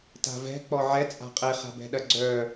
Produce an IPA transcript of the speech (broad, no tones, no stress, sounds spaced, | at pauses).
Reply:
t a̤ v ɛ̤ k͡p ɔ ʕ ɛ t͡sʼ a̤ qʼ e χ a̤ b ɛ̤ ɗ ɐ ɡ͡ǀ œ